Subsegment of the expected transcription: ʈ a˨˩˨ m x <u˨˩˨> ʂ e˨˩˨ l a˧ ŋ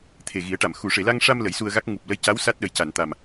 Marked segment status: correct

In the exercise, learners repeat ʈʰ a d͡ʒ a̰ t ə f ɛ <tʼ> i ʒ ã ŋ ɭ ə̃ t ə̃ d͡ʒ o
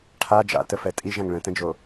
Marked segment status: correct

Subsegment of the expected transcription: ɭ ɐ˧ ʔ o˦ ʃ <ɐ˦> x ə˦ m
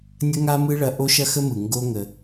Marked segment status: correct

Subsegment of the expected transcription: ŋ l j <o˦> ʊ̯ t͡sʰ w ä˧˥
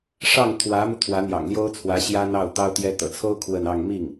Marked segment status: incorrect: o˥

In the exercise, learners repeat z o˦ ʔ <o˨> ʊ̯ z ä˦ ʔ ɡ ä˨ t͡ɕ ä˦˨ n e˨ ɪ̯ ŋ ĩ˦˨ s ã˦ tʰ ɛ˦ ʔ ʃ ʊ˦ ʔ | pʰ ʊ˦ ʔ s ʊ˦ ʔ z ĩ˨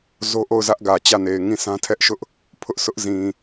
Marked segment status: incorrect: o˦˨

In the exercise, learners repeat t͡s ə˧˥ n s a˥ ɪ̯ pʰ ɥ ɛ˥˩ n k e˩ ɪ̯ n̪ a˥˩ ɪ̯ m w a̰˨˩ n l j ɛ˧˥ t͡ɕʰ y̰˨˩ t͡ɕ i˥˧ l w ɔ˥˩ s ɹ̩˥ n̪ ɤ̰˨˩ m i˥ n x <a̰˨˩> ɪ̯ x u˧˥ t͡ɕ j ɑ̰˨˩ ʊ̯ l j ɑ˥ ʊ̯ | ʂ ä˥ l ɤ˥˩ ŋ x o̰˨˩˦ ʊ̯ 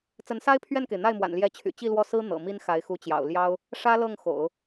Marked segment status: incorrect: a˧˥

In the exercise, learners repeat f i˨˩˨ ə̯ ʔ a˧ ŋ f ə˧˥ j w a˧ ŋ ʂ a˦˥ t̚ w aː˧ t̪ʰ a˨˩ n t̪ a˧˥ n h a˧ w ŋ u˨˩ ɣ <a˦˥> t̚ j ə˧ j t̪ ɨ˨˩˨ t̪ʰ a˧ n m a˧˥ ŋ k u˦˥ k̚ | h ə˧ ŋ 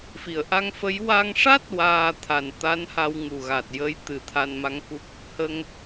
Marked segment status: incorrect: a˨˩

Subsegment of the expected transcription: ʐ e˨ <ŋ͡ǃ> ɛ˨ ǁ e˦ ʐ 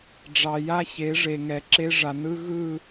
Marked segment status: incorrect: ŋ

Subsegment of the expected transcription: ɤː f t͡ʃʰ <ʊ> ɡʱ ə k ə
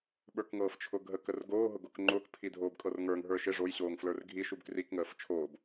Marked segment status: correct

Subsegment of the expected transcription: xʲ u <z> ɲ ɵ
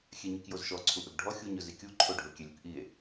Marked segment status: incorrect: none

